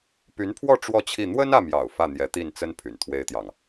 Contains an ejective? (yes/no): no